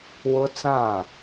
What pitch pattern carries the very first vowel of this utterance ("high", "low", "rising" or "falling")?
high